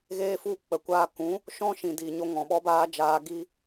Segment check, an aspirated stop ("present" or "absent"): absent